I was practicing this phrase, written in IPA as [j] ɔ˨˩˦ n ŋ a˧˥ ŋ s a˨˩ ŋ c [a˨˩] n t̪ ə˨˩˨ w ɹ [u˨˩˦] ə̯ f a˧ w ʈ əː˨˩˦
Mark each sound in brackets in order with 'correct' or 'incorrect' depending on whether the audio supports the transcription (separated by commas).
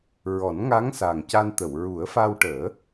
incorrect, incorrect, correct